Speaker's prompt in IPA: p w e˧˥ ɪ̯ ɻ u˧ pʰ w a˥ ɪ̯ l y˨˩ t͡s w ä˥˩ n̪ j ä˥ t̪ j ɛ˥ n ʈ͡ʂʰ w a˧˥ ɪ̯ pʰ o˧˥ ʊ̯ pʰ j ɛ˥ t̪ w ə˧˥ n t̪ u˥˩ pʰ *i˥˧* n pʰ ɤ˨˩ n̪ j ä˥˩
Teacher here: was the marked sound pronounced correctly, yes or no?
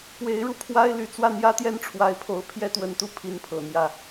no